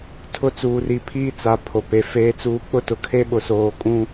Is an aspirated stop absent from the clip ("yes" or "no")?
no